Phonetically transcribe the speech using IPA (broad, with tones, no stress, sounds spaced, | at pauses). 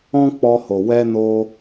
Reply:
ɔ̃˦ k͡p ɔ˧ h o˨ w ɛ˧ n o˧